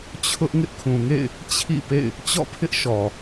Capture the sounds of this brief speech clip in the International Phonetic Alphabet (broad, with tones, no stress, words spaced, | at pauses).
t͡ɕʰʊ˦ʔ ŋɪ˦ʔkʰũ˨ŋḛ˦˨ɪ̯ | t͡ɕʰḭ˦˨pḛ˦˨ɪ̯ | t͡ɕɔ̰˦˨pʰɪ˦ʔ ʃɔ˨